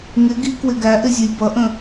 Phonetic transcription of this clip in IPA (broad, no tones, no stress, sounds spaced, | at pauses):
ŋ ɪ ɡ i k w ɪ ɡ æ ʔ ɪ zʲ ʊ j b ʌ ʔ ə̃